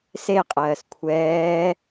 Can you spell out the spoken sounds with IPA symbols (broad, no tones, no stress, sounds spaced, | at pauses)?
s e qʼ ɜː s kʷʰ ɛː